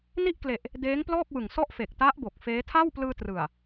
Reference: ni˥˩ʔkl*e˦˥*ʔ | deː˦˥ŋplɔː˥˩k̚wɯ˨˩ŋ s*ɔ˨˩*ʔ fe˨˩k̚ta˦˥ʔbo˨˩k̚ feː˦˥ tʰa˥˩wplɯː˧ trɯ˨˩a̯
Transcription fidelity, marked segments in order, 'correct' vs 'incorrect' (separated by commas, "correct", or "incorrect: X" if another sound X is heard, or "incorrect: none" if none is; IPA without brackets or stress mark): incorrect: e˨˩, incorrect: ɔ˥˩